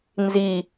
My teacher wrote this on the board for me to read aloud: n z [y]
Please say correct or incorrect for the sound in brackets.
incorrect